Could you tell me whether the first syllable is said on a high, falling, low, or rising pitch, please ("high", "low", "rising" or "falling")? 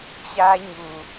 high